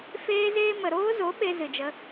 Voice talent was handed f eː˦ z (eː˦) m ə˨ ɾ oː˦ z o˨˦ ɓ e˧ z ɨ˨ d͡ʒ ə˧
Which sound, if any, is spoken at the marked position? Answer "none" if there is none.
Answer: eː˦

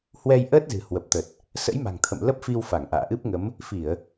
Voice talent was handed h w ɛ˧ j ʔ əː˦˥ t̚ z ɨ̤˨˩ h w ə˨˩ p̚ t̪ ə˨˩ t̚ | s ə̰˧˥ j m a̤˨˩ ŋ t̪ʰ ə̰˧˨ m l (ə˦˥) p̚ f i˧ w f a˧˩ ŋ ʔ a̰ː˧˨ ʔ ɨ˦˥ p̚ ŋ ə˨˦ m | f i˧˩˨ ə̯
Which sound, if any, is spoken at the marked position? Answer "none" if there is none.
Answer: ə˦˥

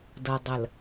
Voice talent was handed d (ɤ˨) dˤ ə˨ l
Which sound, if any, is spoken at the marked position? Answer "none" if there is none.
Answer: ɤ˨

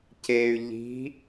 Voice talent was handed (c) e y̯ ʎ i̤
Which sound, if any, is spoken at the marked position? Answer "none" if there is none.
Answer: c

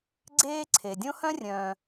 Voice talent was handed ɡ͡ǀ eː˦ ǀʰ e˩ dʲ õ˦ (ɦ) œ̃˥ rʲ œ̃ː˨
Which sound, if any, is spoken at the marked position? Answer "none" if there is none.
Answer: h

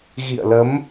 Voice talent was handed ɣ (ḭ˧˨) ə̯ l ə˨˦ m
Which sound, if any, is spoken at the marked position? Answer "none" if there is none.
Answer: ḭ˧˨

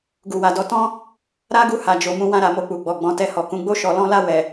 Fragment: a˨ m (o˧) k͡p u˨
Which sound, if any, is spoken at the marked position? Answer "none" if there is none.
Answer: o˧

